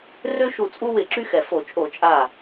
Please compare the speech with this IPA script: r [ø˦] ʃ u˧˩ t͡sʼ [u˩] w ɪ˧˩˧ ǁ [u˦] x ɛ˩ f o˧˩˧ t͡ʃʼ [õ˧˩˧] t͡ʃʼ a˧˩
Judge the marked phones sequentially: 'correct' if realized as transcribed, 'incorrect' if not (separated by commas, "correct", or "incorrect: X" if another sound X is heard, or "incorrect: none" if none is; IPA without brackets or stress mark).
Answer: correct, incorrect: u˦, incorrect: y˦, incorrect: o˧˩˧